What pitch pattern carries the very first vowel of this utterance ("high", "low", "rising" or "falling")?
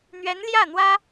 rising